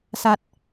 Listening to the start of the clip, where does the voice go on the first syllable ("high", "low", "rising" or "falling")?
low